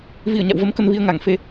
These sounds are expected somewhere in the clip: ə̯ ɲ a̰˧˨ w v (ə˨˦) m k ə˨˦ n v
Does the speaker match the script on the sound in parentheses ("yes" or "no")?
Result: yes